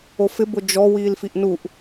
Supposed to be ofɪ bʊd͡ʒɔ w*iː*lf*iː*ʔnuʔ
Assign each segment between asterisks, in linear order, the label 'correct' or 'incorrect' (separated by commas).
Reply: correct, incorrect